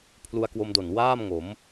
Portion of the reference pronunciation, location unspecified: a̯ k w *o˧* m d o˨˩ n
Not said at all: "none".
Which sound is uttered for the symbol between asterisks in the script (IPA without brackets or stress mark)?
o˧